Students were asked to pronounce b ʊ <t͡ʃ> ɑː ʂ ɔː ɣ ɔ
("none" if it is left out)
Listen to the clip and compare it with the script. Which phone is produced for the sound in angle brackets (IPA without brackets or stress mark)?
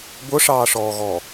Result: ʂ